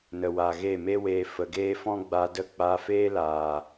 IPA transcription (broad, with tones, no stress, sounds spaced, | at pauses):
n ə˨ w a˨ ɣ e˦˨ m e˦ w eː˧ f ə˨ ɡ eː˦ f ɔ̃˦ ɡ͡b a˧ d ə˦˨ k͡p a˧ f eː˦ l aː˨